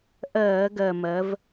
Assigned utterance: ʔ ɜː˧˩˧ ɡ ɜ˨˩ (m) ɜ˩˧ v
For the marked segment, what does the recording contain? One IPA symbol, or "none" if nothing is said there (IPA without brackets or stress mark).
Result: m